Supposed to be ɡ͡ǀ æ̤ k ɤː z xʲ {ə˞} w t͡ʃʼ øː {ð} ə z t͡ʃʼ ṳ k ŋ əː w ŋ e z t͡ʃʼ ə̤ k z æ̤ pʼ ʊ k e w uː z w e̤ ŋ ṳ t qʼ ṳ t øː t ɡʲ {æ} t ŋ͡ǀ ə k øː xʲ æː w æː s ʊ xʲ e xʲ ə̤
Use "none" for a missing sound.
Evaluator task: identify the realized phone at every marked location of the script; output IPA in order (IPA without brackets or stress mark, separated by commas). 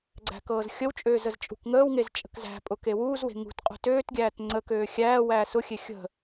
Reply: ə, z, æː